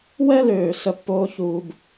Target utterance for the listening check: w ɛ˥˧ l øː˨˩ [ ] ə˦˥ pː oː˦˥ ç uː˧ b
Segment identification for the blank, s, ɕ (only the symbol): s